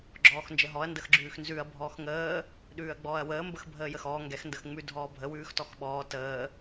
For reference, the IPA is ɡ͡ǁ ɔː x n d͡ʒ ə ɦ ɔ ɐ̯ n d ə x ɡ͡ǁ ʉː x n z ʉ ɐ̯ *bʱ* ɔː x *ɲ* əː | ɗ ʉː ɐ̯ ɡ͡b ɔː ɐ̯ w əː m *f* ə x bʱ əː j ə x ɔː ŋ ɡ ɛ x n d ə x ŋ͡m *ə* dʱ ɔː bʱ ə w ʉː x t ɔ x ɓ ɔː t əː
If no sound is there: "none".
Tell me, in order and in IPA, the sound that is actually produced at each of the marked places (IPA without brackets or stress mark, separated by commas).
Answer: bʱ, ŋ, b, ʉ